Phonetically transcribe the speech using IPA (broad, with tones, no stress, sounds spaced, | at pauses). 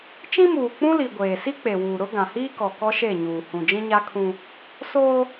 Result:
t͡ʃ ĩ˦ m uː˨ k͡p ũ˦ l i˨ ɡʷ eː˨ s i˦ k͡p e˨ w uː˨ ɾ ʊ˦ ɡ ã˨ h iː˦ k ɔ˨ k ɔ˦ ʃ e˦˨ ɲ uː˨ h ũ˨ d͡ʒ ĩ˦ ɲ a˦ kʰ ũ˦ | s oː˦